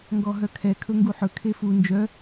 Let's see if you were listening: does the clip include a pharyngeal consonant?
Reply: yes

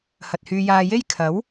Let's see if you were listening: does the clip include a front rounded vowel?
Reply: yes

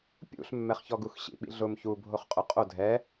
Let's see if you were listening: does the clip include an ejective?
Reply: yes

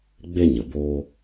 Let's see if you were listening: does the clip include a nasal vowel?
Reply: no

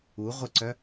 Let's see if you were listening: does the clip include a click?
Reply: yes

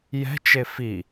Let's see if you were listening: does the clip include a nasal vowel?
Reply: no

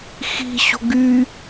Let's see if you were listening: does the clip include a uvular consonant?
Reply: no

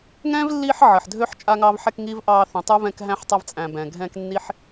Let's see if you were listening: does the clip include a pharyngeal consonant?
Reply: yes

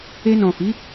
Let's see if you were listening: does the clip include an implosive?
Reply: no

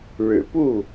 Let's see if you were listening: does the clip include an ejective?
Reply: no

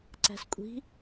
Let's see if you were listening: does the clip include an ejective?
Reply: yes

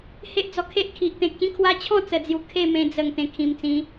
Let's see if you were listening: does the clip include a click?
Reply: no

